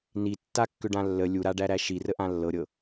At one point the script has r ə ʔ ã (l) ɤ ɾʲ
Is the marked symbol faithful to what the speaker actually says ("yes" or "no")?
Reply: no